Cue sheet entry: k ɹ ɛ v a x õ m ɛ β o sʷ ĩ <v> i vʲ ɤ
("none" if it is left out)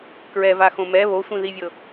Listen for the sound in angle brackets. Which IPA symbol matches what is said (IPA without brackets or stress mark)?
ð